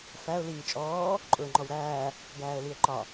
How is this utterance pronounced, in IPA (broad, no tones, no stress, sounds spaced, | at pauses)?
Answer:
f æ ʊ̯ l iː t͡ʃʼ ɔː | ǃʼ ʊː ŋ͡ǃ ɔ w ɾ æː | ɡ æː ə̯ l i ə̯ ǃ ɒ